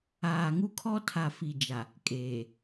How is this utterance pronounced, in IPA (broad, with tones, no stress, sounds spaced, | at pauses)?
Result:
aː˨ ŋ u˦ kʰ ɔ˦ tʰ a˨ f i˨ d͡ʒ a˨ | kʼ eː˨